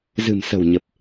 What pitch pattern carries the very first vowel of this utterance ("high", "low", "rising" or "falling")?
low